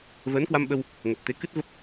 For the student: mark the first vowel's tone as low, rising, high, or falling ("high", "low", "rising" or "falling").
rising